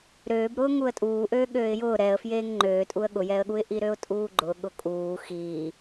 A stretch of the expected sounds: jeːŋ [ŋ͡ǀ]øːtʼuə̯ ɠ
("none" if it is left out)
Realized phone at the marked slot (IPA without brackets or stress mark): ŋ͡ǃ